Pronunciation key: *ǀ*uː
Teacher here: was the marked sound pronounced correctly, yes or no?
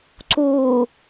yes